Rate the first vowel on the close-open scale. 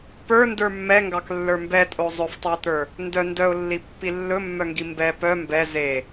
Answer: mid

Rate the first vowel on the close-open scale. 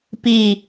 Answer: close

